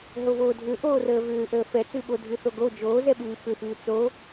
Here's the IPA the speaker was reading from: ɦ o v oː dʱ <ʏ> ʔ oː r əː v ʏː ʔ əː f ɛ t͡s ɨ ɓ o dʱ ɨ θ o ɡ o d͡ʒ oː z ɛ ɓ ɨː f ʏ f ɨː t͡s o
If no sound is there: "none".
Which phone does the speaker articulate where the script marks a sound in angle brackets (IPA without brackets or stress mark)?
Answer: ʏ